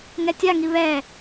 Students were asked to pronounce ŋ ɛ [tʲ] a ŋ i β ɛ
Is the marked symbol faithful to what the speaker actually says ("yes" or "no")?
yes